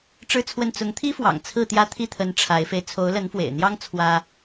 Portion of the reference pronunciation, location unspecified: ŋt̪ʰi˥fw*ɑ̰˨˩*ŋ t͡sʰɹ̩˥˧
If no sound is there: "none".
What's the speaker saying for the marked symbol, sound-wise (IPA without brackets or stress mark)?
ɑ̰˨˩